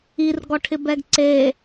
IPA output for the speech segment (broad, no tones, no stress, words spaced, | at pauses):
irɡɔʈʰɪbɛɡ ǀe